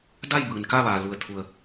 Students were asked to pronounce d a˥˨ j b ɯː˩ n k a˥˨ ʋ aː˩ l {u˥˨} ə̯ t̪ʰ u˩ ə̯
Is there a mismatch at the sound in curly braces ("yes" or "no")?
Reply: yes